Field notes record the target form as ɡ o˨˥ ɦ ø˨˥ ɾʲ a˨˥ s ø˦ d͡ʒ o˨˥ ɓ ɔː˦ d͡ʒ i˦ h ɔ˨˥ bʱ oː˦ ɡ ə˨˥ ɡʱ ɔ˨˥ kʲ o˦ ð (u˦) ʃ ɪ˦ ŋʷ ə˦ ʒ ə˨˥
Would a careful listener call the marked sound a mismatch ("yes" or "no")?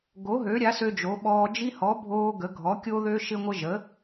yes